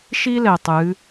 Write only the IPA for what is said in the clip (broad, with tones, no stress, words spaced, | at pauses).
ʃi˧lɛ˩ tˤɨ˩˧